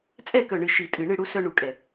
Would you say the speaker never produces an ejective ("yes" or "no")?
no